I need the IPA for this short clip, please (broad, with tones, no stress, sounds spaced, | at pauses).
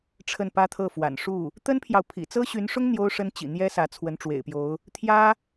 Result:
ʈ͡ʂʰ ə˥˩ n p ä˥ t̪ʰ ɤ˥˩ f w a̰˨˩ n ʂ u˥˩ | t̪ ə˥ n pʰ j ɑ˨ ʊ̯ pʰ ḭ˨˩ t͡s ɤ˥ ɕ y˧˥ n ʂ ʊ˥ ŋ n̪ j o˥ ʊ̯ ʂ ə˥ n t͡ɕ ḭ˨˩ n̪ j ɛ˥ s ä˧˥ t͡sʰ w ə˧˥ n ʈ͡ʂ w ḛ˨˩ ɪ̯ p j o˧˥ ʊ̯ | t̪ʰ j ä˥